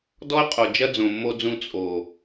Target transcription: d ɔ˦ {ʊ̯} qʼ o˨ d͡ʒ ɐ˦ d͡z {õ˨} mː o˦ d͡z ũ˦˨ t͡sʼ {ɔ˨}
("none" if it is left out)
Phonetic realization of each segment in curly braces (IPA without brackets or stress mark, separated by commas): ə̯, õ˨, o˨